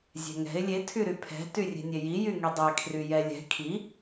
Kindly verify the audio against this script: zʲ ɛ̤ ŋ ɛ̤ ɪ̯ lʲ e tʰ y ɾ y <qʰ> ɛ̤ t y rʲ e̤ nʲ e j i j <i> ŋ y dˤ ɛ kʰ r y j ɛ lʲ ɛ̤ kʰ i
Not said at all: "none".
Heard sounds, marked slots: pʰ, y

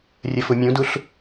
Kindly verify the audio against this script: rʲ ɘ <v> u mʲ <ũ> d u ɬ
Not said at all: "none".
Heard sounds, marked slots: f, ũ

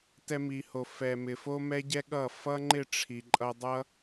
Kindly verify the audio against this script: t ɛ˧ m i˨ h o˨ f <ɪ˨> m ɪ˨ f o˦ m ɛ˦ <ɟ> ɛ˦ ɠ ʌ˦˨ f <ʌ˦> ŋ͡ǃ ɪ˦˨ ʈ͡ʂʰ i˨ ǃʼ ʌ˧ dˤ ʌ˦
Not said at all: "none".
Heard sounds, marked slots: ɛ˨, ɟ, ʌ˦

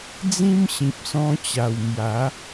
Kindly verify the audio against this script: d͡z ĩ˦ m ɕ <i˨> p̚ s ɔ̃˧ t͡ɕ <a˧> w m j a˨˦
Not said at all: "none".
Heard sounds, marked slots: ĩ˨, a˨˩

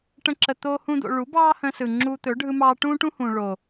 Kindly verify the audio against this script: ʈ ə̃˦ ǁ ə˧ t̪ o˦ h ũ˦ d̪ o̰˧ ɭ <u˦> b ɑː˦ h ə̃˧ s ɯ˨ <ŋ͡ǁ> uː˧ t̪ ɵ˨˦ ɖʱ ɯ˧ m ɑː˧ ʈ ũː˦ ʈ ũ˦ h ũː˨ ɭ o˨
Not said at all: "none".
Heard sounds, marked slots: u˨˦, ŋ͡ǁ

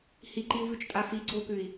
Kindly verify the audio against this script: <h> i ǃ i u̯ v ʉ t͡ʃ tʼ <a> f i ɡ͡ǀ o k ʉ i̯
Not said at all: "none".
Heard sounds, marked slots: h, a

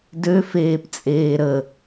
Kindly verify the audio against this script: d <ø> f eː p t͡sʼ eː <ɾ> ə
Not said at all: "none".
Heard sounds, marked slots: ø, ɾ

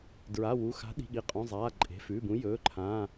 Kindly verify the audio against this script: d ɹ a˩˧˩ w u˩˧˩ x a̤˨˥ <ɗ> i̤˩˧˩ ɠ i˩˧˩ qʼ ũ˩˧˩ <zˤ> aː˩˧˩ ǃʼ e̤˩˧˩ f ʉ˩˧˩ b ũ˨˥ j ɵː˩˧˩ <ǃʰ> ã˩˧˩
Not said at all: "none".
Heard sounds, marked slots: ɗ, zˤ, ǃʰ

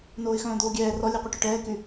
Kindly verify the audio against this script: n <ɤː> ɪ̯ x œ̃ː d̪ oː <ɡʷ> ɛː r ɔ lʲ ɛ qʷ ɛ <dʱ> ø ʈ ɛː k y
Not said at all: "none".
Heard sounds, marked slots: oː, ɡʲ, ʈ

